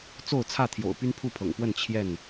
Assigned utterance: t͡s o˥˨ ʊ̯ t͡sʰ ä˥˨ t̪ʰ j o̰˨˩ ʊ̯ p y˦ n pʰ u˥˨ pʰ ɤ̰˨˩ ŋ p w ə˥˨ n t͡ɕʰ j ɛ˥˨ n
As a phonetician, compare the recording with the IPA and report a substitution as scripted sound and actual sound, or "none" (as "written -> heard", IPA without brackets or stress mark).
none